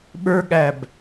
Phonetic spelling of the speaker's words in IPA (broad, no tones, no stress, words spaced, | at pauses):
ɓə˞ɠæb